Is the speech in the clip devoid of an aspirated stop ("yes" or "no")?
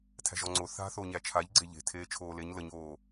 no